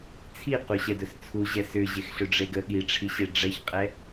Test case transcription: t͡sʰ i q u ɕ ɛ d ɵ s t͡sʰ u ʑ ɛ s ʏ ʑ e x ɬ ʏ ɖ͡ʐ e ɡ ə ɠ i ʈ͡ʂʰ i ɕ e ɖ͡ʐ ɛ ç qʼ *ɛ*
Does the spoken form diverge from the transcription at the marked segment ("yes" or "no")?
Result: no